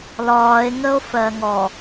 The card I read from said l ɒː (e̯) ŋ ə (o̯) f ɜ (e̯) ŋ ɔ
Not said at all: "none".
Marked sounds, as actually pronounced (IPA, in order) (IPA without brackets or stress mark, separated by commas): e̯, o̯, none